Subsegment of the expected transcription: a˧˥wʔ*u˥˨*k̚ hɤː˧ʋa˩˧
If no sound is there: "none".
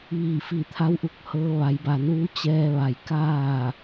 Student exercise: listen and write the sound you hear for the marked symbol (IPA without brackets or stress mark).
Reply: u˧